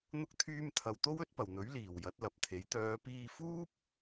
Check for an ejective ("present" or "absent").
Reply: absent